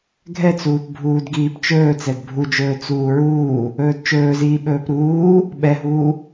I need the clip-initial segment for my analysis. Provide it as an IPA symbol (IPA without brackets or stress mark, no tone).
ɡʱ